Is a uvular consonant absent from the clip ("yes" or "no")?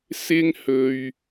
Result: yes